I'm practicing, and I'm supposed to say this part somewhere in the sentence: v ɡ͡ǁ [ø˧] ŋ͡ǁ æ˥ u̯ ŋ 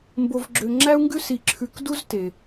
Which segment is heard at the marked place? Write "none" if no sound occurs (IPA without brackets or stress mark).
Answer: ø˧